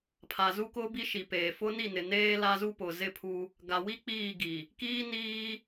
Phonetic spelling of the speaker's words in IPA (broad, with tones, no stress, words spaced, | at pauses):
pʰa˨zu˦kʊ˦ bi˦ʃi˨peː˨ fʊ˦ni˦˨nɪ˨neː˦ la˦zu˦pʊ˨ zɪ˦pʰu˦ | ɡa˨wi˦ k͡piː˦˨ɡi˨ | kiː˦niː˦